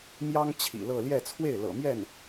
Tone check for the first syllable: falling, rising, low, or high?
high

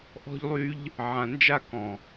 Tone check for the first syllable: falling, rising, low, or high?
high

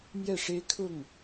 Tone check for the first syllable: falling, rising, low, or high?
falling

